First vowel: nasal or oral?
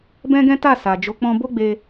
nasal